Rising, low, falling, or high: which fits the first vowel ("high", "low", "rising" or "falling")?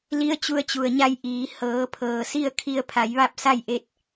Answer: rising